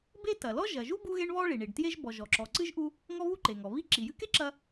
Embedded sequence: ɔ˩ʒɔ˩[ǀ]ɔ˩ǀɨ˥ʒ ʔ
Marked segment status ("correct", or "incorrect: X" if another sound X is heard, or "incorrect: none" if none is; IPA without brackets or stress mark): incorrect: ǁ